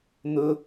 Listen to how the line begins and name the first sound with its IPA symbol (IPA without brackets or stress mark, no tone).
n̪